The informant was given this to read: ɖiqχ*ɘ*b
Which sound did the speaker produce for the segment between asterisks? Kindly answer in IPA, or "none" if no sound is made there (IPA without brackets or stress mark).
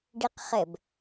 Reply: ɘ